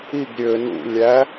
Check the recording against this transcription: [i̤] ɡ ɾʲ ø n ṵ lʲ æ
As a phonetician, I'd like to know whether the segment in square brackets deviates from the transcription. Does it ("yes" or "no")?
yes